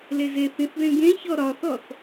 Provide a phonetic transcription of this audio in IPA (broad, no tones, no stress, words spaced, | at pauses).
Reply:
lezeθĩθðẽ ɡẽçɔ ɾɒθɔθ